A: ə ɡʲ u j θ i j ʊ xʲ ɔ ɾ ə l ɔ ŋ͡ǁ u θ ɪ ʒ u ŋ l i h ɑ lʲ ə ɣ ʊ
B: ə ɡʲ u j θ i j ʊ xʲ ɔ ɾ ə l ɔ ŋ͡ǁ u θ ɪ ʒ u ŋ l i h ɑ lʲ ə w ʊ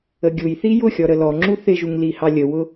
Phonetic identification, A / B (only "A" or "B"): B